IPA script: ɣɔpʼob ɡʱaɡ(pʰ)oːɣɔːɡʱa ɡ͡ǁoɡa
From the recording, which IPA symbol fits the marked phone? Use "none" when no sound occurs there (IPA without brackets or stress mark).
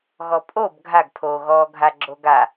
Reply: pʰ